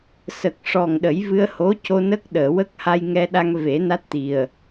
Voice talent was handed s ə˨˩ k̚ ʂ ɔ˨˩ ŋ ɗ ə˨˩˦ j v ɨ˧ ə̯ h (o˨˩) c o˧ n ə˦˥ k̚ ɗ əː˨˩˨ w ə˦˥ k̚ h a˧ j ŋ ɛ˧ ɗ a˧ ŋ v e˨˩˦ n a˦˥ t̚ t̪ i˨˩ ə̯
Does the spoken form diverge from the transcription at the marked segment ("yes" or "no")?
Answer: yes